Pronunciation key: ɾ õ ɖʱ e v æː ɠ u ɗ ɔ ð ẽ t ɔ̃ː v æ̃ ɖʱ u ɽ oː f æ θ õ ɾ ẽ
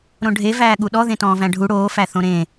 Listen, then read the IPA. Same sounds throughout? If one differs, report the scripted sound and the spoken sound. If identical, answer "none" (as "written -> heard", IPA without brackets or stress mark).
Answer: none